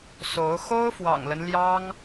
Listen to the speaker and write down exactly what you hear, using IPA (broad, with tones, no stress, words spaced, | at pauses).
so˧˥ʊ̯ xo˥ʊ̯fwɑ̰˨˩ŋlə˦n ljɑ˥ŋ